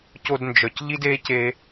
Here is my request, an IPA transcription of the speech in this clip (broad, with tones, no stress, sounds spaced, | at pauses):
c o˧ d n d͡ʒ œ˨ c ʎ i˦ d e˦ c e˧